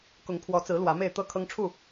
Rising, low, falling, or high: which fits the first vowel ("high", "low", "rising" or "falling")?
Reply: rising